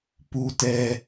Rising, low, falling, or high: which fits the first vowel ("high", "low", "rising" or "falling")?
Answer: high